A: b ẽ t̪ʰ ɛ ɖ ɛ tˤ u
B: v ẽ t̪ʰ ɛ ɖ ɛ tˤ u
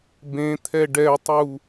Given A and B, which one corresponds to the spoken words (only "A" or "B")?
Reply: A